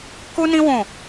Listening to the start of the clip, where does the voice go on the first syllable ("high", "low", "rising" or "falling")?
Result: high